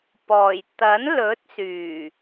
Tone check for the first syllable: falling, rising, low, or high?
low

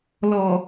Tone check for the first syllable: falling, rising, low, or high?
low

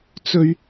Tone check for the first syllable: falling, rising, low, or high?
high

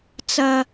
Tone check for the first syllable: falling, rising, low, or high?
high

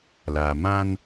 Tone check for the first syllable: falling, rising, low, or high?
low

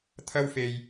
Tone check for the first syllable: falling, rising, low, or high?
high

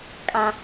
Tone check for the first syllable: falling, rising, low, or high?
high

